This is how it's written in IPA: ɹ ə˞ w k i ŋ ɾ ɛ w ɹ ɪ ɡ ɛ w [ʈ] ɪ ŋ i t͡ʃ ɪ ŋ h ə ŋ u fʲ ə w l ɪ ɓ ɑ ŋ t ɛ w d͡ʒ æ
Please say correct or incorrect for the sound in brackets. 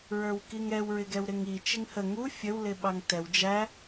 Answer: incorrect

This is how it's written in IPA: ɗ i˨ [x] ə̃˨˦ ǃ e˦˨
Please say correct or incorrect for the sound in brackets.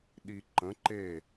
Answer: incorrect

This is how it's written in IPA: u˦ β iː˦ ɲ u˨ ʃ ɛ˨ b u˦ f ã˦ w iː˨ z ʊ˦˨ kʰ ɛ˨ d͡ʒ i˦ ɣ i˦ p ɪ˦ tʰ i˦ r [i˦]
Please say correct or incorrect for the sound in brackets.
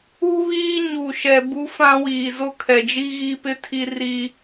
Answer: correct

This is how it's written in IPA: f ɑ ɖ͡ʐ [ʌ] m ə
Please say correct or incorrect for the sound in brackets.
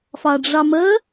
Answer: incorrect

